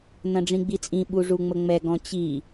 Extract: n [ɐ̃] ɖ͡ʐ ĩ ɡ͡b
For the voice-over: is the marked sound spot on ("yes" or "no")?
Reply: yes